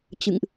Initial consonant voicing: voiceless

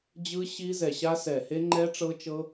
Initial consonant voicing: voiced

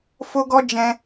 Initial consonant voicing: voiceless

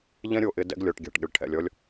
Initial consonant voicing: voiced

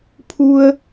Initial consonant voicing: voiceless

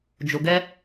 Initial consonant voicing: voiced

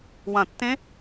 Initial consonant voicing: voiced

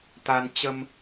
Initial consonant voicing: voiceless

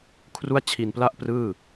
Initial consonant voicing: voiceless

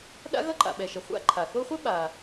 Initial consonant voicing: voiced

